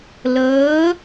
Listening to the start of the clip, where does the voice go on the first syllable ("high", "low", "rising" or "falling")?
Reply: rising